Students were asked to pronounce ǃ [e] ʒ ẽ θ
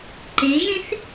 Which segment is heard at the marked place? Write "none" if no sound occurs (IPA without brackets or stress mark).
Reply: e